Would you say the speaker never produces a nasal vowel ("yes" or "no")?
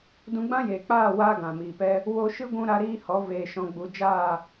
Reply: no